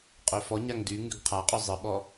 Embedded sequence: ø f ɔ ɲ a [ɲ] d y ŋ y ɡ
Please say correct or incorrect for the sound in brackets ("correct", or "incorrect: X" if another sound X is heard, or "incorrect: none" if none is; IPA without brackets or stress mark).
incorrect: ŋ